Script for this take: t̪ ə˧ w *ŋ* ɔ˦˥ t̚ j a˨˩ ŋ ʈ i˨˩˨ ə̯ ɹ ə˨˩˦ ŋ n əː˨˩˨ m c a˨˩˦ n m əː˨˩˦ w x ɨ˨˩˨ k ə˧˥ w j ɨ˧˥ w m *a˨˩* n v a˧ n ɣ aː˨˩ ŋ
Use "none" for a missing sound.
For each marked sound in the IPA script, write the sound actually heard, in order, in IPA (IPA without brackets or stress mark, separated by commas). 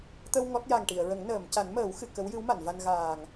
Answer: ŋ, a˨˩˨